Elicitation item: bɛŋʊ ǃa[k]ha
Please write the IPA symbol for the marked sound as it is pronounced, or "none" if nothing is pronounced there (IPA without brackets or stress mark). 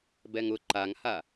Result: ŋ